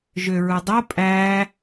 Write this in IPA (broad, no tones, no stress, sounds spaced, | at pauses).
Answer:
ʒ ø ɹ u dˤ o pʼ æ